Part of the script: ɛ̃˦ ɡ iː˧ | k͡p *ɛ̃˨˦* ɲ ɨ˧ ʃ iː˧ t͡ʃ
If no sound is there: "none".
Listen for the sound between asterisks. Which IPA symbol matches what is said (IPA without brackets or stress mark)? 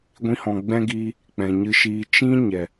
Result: ɛ̃˨